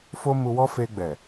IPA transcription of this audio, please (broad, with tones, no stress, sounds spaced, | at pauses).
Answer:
f o˦ m u˧ w ɔ˦ f e˧ ɡ͡b ɛ˨